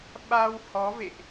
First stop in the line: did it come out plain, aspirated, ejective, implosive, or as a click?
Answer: implosive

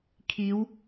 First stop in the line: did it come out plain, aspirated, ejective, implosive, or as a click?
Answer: aspirated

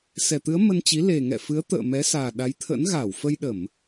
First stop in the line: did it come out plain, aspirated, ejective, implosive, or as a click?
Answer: plain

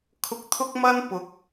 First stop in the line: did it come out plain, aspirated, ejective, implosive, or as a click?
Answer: aspirated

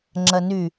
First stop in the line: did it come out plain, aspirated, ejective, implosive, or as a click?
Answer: click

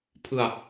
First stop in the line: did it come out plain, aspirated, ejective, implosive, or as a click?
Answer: aspirated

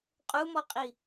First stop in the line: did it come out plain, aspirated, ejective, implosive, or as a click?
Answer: ejective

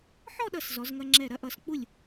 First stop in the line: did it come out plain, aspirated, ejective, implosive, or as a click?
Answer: implosive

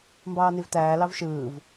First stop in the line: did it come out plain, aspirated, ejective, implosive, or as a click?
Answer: plain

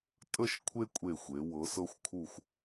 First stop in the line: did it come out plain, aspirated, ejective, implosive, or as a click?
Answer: ejective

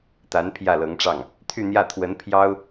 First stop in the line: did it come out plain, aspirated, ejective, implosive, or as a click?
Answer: plain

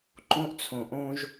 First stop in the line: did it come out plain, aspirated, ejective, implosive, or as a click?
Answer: click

